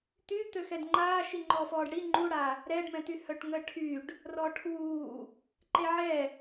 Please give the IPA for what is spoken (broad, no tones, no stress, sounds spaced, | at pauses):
t̪ y t̪ ø x ɛ d ŋ͡ǃ aː ʃ i ŋ͡ǃ ɔː f ɔː ɖ ɽ i ŋ͡ǃ u ɽ a | ɾ ɛ ɖ m ɛ̃ t̪ y h œ ʈ ŋ ə ʈʰ y ɖ | r ɔ ʈʰ uː | ǃ e ʕ ɛ